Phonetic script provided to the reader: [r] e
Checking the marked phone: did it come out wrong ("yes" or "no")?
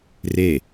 no